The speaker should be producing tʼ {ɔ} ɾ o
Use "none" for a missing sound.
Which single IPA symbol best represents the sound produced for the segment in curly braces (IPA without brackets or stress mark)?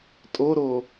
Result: o